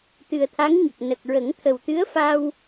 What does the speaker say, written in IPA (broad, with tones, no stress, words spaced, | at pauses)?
t̪ɨ˨˩ə̯t̪ʰa˧˥ŋɲə˨˩k̚ nə˨˩k̚ ɹə˨˩˦ŋt̪ʰə˨˩w t̪ɨ˧˥ə̯fa˧w